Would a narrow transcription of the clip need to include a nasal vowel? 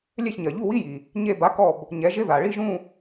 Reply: yes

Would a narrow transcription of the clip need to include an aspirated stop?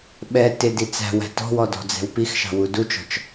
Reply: no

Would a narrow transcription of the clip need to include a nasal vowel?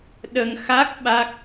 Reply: no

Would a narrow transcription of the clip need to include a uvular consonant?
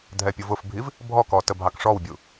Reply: no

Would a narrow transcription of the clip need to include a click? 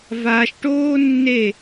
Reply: no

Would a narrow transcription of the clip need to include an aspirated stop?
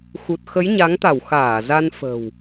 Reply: no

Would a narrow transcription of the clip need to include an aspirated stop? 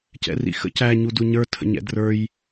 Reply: yes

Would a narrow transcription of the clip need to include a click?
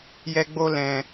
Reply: no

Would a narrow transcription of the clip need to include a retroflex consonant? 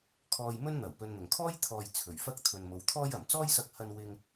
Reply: no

